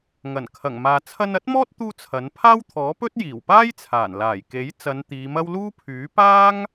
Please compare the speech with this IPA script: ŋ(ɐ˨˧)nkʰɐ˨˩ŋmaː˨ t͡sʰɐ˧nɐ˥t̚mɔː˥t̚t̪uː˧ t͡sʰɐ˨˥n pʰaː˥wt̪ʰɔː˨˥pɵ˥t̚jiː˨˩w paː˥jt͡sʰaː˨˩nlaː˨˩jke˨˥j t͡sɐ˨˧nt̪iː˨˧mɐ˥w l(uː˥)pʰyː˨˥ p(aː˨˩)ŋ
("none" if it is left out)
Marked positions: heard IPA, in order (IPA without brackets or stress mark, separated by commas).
ɐ˨˩, uː˥, aː˥